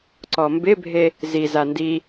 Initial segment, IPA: ǀ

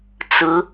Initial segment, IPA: t͡s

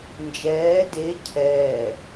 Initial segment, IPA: n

